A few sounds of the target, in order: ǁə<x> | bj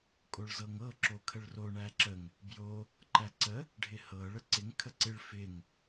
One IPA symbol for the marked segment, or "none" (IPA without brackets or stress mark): ŋ